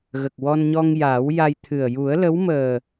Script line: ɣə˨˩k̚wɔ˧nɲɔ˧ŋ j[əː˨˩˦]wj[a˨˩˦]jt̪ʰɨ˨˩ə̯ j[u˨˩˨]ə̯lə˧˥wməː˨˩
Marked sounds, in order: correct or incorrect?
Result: incorrect, incorrect, incorrect

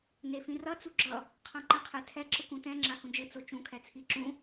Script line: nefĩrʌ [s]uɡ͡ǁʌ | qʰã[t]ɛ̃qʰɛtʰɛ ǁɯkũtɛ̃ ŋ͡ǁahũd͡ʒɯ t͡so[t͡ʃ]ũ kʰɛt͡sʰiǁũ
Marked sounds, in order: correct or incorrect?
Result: incorrect, incorrect, correct

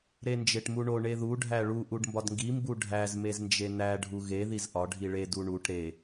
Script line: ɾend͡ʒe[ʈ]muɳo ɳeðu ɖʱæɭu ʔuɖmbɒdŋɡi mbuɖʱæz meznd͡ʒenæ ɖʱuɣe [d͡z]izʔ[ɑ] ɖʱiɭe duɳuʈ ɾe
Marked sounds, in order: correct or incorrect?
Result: correct, incorrect, incorrect

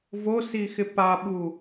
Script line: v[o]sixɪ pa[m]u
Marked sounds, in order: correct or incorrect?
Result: correct, incorrect

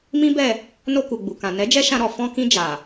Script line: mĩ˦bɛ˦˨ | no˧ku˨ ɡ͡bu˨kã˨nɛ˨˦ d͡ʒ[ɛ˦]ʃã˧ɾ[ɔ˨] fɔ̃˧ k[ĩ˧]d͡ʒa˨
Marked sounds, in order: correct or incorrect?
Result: correct, correct, correct

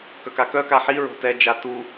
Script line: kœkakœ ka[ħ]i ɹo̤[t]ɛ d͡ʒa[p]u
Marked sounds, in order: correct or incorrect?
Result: correct, correct, incorrect

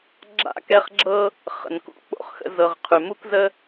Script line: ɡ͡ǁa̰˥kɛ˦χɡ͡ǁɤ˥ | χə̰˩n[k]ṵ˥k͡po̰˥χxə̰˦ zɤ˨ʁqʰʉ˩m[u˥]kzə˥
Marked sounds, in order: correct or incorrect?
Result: correct, correct

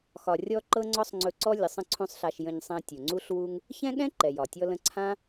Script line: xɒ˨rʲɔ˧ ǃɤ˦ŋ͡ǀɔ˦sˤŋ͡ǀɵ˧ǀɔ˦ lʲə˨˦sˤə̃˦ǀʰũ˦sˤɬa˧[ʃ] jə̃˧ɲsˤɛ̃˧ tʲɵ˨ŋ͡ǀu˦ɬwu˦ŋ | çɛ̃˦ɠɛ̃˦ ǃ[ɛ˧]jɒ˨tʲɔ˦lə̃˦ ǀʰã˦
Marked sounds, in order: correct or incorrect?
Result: correct, incorrect

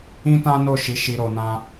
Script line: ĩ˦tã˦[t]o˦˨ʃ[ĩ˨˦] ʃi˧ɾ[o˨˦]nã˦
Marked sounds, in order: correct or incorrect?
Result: incorrect, incorrect, incorrect

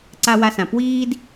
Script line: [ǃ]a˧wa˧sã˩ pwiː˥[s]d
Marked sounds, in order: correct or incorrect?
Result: incorrect, incorrect

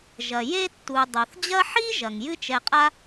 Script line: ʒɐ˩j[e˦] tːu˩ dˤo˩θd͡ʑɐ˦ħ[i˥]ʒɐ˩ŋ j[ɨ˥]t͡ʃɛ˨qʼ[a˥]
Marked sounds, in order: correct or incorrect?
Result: correct, correct, correct, correct

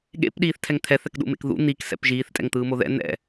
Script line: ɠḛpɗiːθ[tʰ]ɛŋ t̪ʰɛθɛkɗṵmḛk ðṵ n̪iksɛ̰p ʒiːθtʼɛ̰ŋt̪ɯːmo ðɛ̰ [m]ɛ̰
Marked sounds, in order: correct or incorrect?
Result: correct, incorrect

